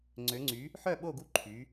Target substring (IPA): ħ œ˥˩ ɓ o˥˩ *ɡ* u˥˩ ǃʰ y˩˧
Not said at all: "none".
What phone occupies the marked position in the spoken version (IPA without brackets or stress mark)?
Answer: ɡ